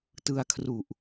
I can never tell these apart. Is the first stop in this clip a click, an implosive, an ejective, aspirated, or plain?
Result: plain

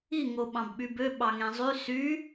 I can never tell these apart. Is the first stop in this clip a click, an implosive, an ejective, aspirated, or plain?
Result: implosive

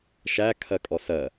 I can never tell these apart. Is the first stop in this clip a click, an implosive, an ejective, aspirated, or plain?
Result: aspirated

